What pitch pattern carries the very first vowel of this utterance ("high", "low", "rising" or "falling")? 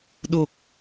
low